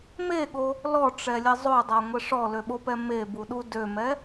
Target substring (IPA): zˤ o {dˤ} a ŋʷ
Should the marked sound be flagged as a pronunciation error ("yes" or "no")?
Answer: no